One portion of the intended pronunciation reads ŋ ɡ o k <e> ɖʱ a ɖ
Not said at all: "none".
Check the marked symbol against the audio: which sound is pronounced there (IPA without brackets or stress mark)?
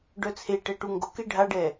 e